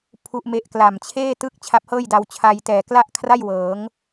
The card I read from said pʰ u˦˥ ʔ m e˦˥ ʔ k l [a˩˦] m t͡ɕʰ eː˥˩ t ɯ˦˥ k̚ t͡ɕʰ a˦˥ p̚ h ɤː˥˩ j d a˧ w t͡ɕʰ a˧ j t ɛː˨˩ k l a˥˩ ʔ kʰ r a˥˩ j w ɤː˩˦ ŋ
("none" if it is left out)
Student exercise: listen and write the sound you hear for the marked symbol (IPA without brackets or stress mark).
a˨˩